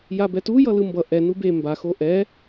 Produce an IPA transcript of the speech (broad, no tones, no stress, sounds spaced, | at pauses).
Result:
j a b ɛ t u j ʌ l ɯ m b ʌ ʔ ɛ n u b e m b a x o ʔ ɛ